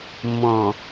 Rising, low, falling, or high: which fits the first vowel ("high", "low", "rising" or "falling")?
low